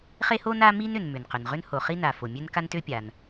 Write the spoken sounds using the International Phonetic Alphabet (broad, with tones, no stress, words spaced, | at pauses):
χe˥ho˥n a˥ mi˥nʏ˩n mʏ˩nqʏ˩nʁʏ˥n ho˩χi˥na˩ fo˩mʲø˥n ka˥ntø˥pʲa˩n